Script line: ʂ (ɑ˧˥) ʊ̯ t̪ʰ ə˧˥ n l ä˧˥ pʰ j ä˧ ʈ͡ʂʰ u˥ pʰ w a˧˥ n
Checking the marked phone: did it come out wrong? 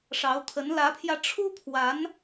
no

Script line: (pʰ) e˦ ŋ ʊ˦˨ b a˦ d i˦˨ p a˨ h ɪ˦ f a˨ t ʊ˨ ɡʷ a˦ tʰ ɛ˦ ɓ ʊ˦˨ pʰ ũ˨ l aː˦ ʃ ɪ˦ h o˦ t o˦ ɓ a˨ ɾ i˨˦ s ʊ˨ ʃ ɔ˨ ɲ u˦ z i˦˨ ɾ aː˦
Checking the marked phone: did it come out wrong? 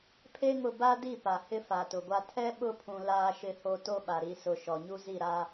no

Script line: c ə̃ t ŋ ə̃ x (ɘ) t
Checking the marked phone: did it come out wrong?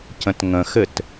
no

